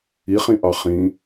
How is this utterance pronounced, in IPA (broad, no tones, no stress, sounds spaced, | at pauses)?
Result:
i χ ĩ ʔ ɑ χ ĩ